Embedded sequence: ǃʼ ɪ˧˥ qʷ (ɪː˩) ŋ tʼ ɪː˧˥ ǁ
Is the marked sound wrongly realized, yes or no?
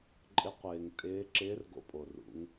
no